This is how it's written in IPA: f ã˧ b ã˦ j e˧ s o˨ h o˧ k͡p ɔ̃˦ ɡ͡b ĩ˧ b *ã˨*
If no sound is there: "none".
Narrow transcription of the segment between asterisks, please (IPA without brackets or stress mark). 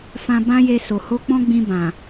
ã˨